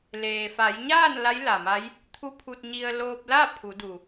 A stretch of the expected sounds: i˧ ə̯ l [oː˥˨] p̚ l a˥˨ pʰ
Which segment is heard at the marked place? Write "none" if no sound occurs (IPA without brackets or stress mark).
oː˧